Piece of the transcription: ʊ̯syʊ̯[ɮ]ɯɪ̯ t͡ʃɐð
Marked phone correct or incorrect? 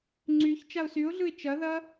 correct